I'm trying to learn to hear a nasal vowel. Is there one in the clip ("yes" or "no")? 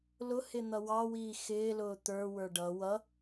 no